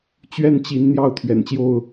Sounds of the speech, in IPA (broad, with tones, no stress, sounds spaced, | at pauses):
t͡ɕ ɥ ɛ˥˨ n t͡ɕ i˨˦ n n̪ j ɑ˥˨ ʊ̯ t̪ʰ ɥ ɛ̰˨˩ n t͡ɕ j o˥˨ ʊ̯